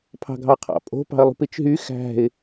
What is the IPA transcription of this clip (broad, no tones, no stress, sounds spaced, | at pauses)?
pʰ ɑ̤ ɡʱ ɑ qʰ ɑ̰ pʼ o̤ p ɑ̤ ə̯ lˠ ṳ p i t͡ʃ ɦ y x æ̤ ɪ̯